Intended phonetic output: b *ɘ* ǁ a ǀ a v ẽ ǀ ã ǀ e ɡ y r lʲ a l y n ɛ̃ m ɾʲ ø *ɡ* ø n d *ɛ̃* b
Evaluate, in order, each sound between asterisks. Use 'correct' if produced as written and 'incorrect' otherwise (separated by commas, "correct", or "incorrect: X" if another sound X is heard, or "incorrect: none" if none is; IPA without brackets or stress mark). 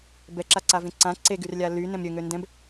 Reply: incorrect: ɛ, incorrect: ŋ, correct